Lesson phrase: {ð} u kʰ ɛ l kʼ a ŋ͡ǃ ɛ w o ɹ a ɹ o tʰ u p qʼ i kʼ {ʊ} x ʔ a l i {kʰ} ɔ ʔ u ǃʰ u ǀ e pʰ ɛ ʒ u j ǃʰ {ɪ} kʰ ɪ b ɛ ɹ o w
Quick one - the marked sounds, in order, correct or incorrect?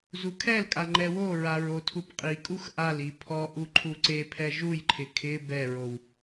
incorrect, incorrect, incorrect, correct

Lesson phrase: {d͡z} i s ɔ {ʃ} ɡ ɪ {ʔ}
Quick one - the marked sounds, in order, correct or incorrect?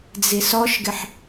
correct, correct, incorrect

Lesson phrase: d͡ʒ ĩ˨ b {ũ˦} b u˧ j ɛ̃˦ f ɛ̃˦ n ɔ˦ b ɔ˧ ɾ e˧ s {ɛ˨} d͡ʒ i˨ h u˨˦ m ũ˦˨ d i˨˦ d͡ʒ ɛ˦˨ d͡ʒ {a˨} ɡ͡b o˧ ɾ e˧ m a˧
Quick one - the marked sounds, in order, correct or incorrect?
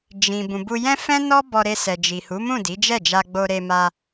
incorrect, correct, incorrect

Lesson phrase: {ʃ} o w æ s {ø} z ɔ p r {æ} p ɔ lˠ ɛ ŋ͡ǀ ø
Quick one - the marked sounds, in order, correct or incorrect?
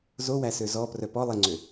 incorrect, correct, incorrect

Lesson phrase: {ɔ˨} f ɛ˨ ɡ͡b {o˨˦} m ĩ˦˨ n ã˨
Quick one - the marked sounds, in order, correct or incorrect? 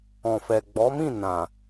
incorrect, incorrect

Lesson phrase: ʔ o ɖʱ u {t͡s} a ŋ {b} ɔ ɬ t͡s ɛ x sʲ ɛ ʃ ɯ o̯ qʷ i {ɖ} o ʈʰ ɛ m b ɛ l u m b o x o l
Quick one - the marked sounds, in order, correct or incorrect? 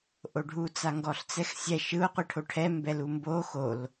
correct, incorrect, incorrect

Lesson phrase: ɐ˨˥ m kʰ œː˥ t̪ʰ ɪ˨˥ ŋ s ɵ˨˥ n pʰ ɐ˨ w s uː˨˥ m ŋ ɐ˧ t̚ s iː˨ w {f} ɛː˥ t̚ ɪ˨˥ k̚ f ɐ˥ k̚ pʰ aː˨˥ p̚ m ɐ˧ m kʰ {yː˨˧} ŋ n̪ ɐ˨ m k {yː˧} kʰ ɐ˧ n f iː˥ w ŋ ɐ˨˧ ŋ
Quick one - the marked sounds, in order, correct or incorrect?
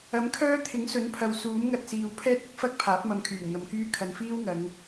incorrect, incorrect, incorrect

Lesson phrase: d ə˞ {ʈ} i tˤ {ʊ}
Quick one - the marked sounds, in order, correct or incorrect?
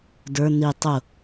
incorrect, correct

